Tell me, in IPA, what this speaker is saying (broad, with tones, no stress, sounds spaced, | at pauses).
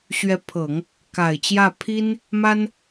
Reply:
ɕ ɥ ɛ˧˥ pʰ ɤ˨˩˦ ŋ | k a˨˩ ɪ̯ t͡ɕ j ä˥˩ pʰ i˥ n | m a˥ n